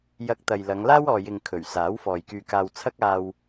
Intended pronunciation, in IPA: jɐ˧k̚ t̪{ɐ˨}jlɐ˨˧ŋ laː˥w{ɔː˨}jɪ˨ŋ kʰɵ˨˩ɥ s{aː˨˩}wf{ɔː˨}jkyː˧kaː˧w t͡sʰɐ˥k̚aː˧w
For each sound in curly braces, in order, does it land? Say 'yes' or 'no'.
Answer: yes, yes, no, yes

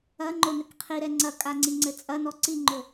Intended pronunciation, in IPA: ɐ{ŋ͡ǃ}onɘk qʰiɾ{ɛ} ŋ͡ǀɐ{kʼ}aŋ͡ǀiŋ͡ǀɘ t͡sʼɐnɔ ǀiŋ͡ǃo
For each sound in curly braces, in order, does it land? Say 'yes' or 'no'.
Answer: yes, yes, yes

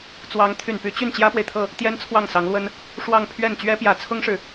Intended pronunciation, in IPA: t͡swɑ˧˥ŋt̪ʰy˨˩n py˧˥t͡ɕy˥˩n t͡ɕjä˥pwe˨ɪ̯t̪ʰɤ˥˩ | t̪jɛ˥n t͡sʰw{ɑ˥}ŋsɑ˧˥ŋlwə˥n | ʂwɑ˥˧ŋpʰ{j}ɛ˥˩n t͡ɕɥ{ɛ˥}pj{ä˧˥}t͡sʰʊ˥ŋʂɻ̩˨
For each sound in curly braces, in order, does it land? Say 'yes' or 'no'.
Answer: no, no, yes, yes

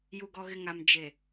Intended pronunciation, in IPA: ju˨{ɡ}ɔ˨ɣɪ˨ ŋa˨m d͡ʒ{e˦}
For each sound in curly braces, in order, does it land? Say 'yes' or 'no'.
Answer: yes, no

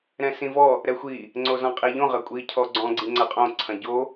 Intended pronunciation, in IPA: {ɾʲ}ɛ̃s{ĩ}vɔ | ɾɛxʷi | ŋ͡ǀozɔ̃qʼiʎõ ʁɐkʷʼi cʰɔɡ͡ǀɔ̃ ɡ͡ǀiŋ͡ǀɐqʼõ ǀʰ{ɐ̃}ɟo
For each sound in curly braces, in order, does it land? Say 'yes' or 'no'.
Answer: no, yes, yes

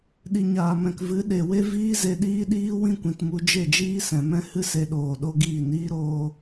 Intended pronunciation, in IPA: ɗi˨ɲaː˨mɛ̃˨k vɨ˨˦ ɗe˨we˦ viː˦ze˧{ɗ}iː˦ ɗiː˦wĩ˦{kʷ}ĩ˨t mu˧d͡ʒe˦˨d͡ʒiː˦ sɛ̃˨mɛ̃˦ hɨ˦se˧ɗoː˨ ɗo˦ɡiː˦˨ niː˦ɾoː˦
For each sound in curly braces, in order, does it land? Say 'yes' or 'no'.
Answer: yes, yes

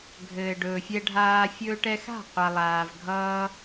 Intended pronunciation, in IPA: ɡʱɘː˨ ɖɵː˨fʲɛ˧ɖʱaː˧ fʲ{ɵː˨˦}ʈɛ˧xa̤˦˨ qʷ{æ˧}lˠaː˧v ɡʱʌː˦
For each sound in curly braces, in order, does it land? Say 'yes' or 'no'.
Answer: no, no

